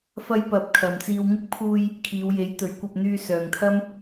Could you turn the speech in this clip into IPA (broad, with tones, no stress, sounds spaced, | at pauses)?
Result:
f ɐ˥ j p ɐ˧ p̚ kʰ ɐ˨ m t͡s iː˧ w ŋ ɪ˥ k̚ pʰ uː˧ j | kʰ iː˨˧ w j e˨˥ j t̪ ɵ˨˥ ɥ kʷ ɐ˧ p̚ n̪ yː˧ s œː˨ ŋ t̪ʰ ɐ˥ m